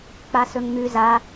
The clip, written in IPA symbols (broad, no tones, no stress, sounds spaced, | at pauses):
k͡p a s ɵ ŋ m ʉ z a